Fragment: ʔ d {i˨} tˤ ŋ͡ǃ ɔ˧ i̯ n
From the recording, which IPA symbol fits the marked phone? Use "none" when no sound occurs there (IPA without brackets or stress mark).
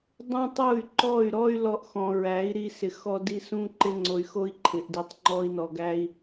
i˨